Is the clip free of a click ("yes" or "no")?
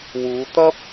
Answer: yes